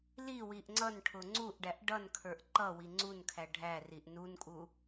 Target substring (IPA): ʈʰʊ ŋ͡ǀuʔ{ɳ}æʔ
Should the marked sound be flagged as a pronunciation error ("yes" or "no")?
yes